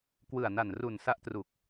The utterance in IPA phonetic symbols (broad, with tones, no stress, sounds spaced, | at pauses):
k w ɯ˨˩ a̯ n a˨˩ n r u˨˩ n s a˦˥ ʔ t r u˨˩ k̚